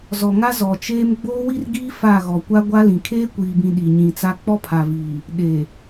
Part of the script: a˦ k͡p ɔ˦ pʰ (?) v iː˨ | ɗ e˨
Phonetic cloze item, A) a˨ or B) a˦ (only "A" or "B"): A